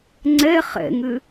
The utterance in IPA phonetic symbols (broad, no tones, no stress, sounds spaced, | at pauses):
ŋ͡ǀ ɛ χ ɛ̰ ŋ ʏ